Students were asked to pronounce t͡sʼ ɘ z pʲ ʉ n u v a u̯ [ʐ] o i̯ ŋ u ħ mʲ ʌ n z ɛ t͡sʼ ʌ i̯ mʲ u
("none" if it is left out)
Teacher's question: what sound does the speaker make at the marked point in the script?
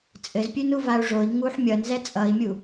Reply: ʐ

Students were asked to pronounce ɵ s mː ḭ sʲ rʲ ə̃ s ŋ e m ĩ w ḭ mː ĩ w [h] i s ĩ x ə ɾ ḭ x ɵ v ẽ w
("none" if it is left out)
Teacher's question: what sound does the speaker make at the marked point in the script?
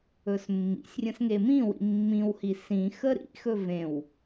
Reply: h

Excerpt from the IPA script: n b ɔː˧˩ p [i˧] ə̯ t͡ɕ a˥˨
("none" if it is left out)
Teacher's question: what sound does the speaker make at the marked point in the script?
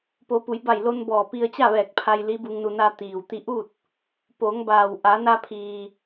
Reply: i˧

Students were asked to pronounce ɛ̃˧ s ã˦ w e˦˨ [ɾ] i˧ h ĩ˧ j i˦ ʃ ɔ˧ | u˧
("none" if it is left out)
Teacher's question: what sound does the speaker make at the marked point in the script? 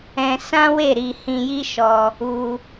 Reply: ɾ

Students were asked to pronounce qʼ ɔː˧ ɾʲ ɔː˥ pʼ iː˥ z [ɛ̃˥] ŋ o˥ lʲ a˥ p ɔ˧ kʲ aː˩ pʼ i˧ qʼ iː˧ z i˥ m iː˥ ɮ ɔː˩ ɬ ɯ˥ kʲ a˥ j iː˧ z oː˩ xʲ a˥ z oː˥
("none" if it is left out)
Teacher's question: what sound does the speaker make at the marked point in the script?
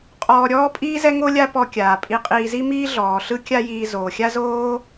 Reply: ɛ˥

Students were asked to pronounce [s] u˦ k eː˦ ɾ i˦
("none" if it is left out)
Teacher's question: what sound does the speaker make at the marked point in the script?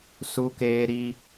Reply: s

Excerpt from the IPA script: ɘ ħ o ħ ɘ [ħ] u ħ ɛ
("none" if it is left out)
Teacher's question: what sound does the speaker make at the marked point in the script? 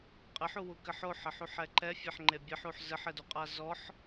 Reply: ħ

